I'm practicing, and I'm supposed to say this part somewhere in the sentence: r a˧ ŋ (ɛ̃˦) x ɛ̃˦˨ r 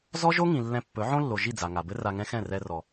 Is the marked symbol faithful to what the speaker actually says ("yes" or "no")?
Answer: yes